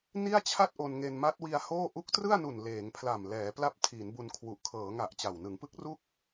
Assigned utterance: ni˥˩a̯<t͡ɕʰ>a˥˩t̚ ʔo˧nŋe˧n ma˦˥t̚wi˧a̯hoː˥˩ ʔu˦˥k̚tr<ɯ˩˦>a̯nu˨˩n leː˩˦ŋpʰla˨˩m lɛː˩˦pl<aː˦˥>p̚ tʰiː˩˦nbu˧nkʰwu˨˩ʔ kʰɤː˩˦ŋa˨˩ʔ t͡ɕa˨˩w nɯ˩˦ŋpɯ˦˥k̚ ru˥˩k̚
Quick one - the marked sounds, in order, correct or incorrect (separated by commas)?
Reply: correct, incorrect, incorrect